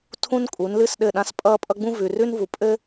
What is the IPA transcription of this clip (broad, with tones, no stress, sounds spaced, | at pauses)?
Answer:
tʰ ũ˦ n kʼ u˨˦ n l ɨ˦ s ɗ ɘ˦˨ ɗ ã˦ s pʼ ʌː˦ pʼ ʌ˦ ɡ͡b ũ˦ v ʉ˨ r ʉ˦ n v u˨ pʼ ɘ˦